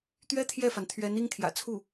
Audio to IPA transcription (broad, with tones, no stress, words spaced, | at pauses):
t̪ɥɛ˥ t̪ʰjɛ˥˩fa˩n t̪ʰɥɛ˧˥n i˥ŋt̪ʰjä̰˨˩ t͡sʰu˥˩